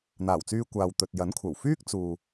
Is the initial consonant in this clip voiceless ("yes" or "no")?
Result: no